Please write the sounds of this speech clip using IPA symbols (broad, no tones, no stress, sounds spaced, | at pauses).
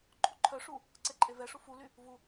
ǃʼ u ǃʰ œ ʂ u | ǀ ɛ ǃʼ e v ɛ ʂ u f u l y | v u